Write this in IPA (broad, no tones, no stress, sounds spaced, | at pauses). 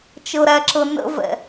t͡ʃ ɤ ɾ æ ǁ ɤ n ə̰ v ɛ̰